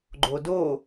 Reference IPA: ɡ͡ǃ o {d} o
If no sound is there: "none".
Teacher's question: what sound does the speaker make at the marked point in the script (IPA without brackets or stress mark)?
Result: d